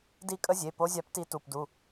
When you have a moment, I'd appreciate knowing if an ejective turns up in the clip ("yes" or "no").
yes